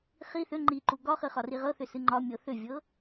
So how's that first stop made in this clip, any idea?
click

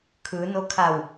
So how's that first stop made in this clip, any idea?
aspirated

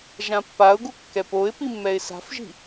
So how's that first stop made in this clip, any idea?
plain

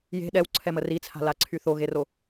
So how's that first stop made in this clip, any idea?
implosive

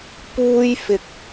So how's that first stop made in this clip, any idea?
plain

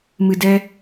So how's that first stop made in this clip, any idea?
plain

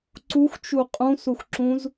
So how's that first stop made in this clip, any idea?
click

